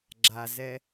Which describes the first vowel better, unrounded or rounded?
unrounded